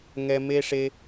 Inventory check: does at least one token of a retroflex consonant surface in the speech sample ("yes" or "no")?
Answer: yes